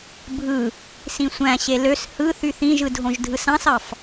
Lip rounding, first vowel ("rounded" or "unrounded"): unrounded